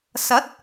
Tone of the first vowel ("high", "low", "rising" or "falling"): rising